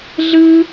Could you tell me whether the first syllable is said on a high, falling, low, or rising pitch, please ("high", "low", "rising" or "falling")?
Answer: high